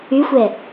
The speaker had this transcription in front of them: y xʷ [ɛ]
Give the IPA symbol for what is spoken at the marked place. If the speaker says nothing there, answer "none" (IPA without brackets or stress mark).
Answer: ɛ